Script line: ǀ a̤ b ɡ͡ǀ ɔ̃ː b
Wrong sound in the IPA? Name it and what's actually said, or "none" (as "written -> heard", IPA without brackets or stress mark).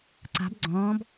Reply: none